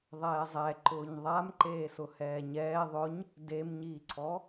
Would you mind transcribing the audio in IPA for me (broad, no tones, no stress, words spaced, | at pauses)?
ðˤɛːzˤɛǃʊːɲ ðˤamǃeːsʊ hɛːɲɛː ðˤʊɲ | demɲiːǀʰɔ